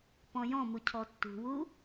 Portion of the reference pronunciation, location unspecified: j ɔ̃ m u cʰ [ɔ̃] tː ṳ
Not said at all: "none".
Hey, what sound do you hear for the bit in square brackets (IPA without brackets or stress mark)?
ɔ